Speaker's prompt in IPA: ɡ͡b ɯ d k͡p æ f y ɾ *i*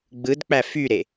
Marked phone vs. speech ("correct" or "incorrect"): incorrect